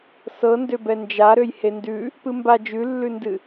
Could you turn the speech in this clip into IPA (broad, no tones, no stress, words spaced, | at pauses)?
sɤndøbɛ nd͡ʒaɾøj hendʉ | pɨmba d͡ʒʉlːʉndɨ